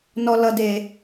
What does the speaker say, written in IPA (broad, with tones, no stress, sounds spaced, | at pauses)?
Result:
n ɔ˧ l ʌ˧ d e˧